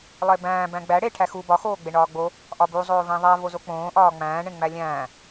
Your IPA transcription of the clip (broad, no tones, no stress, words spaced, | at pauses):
lˠebæ̃ː bæ̃ɡ͡bæ ɽe ʈʰæxu bɒ xoːɡ͡beɳɒːɡ͡bo | ʔɒbu zˤoːvẽðˤæ vozok͡põː ʔɒːŋ͡mæ̃ː ɳẽŋ͡mælʲæ̃ː